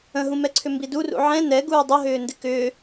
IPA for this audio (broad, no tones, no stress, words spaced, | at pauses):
ə̃ɦũmɛǀʰʏ mbidurṵ ʕɛ̃ nɛ ɡuːdˤəɦʏː ndɪkʏː